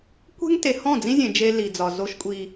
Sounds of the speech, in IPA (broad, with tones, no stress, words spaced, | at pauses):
kʷe̤˦ŋ te˨hɔ̃˦˨d͡zĩ˦zʲẽ˨ d͡ʒe˦li˨d͡zɒ˨ zo˦ʃkʷʼi˦